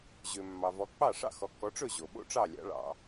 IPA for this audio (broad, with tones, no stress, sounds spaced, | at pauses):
ʑ ø˩ mː ɑ˩ v ɔ˩˥ k͡p ɑ˥˩ ʂ ɑ̰˥˩ x ɔ˩˥ k ɔ˩˥ ʈ͡ʂ ɵ˥˩ ʑ o˩ ɓ o̰˥˩ ʈ͡ʂ ɑ˥˩ lʲ ɑ̰˩˥ ɭ ɑ̰˩